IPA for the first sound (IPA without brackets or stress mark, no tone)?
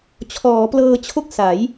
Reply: t͡ɕʰ